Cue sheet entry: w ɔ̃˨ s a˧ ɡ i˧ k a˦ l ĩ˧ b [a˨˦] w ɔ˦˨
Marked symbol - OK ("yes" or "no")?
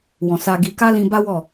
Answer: no